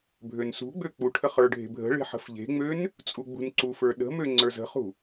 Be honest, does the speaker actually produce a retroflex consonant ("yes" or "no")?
yes